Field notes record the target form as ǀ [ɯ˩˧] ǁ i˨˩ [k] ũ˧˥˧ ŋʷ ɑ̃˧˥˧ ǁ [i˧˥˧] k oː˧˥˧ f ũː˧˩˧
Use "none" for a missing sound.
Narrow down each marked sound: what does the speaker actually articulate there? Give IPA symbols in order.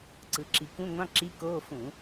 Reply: ɯ˩˧, k, i˧˥˧

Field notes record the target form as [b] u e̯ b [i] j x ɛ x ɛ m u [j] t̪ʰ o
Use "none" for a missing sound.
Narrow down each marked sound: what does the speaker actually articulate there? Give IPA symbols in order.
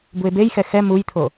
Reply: b, e, j

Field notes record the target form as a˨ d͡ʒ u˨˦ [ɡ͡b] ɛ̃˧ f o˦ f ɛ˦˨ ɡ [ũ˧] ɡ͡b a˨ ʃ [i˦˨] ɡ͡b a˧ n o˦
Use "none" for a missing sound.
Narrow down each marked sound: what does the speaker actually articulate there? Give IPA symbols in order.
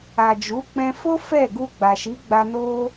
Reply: k͡p, u˧, i˨˦

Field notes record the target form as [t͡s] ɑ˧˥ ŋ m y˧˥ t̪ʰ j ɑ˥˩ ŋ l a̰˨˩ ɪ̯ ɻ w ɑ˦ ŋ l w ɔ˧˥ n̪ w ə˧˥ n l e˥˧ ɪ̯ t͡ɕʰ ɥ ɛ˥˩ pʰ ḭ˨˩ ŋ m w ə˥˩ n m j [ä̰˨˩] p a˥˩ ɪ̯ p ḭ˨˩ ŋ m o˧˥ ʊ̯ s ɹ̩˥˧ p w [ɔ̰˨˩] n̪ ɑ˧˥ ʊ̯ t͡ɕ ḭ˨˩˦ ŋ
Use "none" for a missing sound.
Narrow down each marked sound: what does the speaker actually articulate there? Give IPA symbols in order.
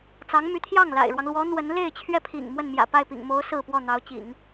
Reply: t͡s, ä̰˨˩, ɔ˥˩

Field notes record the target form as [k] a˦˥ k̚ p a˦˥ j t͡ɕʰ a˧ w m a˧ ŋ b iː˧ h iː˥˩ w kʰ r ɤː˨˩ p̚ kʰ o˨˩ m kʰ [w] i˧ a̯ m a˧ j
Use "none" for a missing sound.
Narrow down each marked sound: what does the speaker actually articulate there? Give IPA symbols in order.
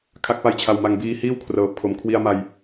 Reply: kʰ, w

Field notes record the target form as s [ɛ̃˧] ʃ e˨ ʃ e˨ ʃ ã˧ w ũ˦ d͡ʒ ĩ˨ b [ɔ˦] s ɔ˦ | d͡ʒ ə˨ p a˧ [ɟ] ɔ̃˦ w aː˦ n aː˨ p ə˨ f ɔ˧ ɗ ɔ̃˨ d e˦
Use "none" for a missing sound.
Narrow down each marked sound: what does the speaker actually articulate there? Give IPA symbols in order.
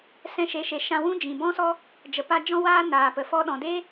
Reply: ɛ̃˧, ɔ̃˦, d͡ʒ

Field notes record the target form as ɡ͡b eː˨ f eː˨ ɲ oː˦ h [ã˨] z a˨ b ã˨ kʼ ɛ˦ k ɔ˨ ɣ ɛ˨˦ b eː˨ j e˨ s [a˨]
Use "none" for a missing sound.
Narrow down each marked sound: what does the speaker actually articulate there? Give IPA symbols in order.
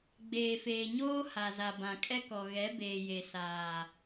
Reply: a˨, aː˨

